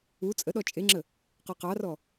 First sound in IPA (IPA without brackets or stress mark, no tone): u